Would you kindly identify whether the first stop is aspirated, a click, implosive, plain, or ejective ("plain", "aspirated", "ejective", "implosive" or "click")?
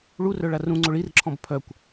click